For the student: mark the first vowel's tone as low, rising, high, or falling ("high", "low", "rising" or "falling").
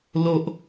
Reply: low